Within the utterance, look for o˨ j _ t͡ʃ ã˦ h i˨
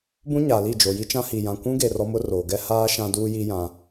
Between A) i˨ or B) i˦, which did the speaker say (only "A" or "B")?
B